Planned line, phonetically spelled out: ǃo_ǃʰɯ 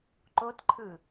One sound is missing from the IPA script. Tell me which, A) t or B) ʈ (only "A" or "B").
A